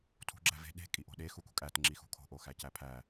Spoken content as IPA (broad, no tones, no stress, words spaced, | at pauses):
tʰṳɡ͡ǁæ ve̤ ɗe̤kʼi ʔo̤ɗe xukṳkʼæt ŋ͡ǁixṳkʰo̤ʔo xæcæpʰæ